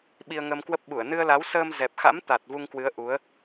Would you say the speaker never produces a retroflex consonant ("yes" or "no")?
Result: yes